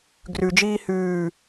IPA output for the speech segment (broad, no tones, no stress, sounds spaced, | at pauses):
ɡ r ʉ d͡ʒ iː h ʉː